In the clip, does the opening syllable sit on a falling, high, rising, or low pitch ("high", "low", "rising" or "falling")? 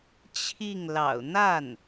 falling